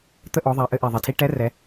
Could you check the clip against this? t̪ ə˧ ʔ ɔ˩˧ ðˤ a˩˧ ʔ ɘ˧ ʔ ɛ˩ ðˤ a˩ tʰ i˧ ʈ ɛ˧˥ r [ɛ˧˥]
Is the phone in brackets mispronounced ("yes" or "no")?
yes